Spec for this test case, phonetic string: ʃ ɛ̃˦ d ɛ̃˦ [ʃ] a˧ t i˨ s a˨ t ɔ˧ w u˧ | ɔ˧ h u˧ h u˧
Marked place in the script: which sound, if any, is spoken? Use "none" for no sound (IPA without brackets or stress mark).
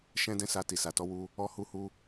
s